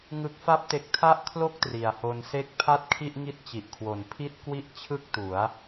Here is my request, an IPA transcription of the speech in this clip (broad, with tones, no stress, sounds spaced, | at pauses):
ŋ ɯ˦˥ k̚ f a˥˩ p̚ t e˦˥ k̚ tʰ a˥˩ ʔ kʰ l o˥˩ k̚ t r i˩˦ a̯ h o˧ n s e˥˩ k̚ pʰ a˥˩ t̚ kʰ i˥˩ ʔ ŋ i˥˩ t̚ t͡ɕ i˨˩ ʔ kʰ w o˨˩ n pʰ i˥˩ t̚ k w i˥˩ ʔ t͡ɕʰ ɯ˥˩ k̚ t u˩˦ a̯